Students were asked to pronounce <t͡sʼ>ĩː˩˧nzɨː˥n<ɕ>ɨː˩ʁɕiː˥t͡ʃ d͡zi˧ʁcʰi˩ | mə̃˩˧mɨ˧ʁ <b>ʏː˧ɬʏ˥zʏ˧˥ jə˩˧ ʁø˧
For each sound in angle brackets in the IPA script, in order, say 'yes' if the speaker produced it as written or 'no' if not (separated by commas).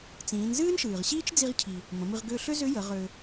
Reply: no, no, no